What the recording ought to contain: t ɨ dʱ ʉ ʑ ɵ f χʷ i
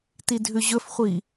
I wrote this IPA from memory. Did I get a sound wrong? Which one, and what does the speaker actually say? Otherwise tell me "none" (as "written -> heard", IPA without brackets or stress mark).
ɨ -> i